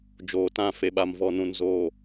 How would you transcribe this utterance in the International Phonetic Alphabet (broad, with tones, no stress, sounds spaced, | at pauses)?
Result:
d͡ʒ oː˨ t ã˦˨ f e˨ ɓ a˨ m v ɔ˨ n ũ˨ n z oː˨